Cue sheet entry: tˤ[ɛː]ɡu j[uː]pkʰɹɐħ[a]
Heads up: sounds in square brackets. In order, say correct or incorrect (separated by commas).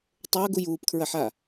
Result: incorrect, correct, correct